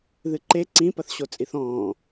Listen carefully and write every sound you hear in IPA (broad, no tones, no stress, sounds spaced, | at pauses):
ð ɨ ǃ e ǀ ĩ p ɐ θ ɕ o t͡sʼ i θ ɔ̃ː